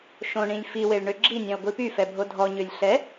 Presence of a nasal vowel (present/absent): present